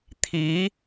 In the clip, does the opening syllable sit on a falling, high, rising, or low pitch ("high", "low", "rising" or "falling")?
rising